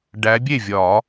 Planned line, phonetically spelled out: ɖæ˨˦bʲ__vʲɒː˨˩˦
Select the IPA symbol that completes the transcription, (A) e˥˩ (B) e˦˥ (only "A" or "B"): A